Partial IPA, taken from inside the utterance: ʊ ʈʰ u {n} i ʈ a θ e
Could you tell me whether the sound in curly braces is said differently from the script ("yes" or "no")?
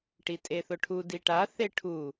yes